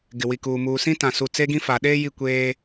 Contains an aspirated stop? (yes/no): no